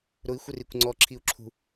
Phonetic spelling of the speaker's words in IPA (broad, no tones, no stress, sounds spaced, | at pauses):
ɾ ʊ i̯ xʷ ɪ r i kʷ ŋ͡ǀ ɔ ǁʰ i u̯ ǁʰ ṳ